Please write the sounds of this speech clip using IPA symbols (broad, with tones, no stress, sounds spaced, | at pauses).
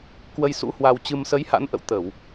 k w ə˧ j s ṵ˧˥ h w a˧ w t͡ɕ ɨ˧ m s ə˨˦ j h a̰˧˥ n ʔ ə̰˧˨ w t̪ ə˧˩˨ w